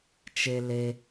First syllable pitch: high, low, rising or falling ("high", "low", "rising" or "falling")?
low